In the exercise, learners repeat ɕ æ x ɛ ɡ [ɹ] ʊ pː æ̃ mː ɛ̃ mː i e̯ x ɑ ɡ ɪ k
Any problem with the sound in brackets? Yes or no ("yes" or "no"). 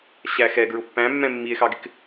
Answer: no